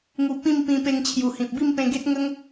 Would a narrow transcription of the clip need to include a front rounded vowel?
no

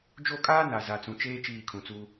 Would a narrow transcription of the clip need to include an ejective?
yes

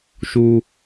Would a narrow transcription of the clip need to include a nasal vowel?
no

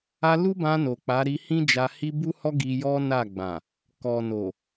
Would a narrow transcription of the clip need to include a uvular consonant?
no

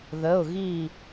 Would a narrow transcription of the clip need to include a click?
no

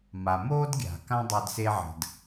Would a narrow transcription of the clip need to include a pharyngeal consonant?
yes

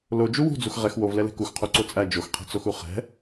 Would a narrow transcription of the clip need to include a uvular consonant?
yes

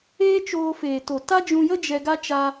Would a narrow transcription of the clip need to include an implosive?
no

